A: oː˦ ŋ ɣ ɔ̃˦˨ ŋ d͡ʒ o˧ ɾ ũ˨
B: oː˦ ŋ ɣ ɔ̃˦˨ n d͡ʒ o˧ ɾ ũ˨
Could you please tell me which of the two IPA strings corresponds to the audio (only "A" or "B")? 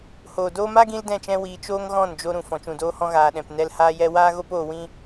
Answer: B